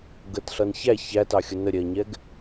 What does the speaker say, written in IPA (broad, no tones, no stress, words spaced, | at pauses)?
ɡətɬʌn çæ çætɑxʲʊ nəɾʲɛɐ̯ɲɛɡ